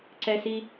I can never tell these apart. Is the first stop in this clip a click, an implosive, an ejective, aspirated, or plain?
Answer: click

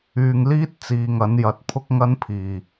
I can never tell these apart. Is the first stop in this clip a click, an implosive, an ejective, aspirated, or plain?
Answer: plain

